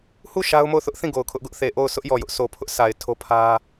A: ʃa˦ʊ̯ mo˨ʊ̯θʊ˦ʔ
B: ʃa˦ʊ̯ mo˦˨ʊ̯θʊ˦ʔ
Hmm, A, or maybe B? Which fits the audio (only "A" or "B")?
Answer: B